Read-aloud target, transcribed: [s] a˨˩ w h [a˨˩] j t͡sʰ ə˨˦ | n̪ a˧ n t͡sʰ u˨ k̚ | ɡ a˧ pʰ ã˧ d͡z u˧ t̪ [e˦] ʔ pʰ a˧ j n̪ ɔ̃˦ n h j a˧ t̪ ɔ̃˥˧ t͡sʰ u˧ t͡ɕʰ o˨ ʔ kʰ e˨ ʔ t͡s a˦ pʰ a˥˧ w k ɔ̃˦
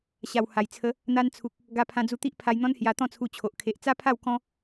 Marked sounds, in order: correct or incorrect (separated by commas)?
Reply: incorrect, correct, incorrect